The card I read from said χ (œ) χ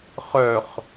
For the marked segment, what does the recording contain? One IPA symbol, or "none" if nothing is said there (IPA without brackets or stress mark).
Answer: œ